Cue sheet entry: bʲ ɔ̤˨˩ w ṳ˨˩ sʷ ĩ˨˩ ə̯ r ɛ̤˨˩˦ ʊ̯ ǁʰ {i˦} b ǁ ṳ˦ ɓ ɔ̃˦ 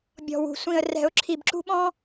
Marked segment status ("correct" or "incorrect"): incorrect